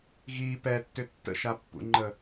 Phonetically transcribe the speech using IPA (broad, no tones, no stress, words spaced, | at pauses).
ɣi pɛtːʏ tːə̰ʃapːṵŋ͡ǃə